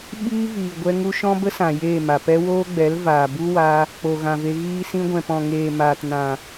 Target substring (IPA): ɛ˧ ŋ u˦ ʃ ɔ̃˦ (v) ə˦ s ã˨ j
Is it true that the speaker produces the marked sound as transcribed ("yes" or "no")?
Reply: no